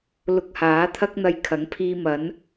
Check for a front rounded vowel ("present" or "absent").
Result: absent